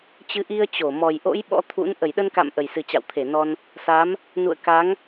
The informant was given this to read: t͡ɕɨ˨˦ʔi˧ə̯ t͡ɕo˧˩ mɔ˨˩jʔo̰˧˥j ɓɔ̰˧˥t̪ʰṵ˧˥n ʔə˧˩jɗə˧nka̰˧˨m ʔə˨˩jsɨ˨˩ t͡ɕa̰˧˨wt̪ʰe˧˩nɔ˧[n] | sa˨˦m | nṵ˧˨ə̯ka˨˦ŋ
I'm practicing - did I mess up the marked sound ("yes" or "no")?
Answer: no